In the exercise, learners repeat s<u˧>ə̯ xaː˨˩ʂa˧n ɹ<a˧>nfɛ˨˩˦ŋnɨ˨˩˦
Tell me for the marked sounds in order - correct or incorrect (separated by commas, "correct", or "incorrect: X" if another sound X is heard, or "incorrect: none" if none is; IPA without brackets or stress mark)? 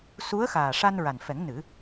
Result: incorrect: u˧˥, incorrect: a˨˩